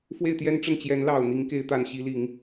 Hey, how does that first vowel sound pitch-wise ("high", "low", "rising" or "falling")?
falling